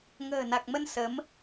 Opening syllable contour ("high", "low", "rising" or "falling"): low